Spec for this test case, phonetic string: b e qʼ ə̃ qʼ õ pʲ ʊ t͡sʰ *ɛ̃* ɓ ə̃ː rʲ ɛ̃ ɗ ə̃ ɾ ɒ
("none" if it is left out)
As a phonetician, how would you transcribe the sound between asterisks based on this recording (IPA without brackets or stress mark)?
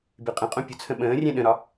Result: ə̃